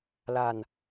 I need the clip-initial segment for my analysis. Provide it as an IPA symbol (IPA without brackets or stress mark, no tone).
l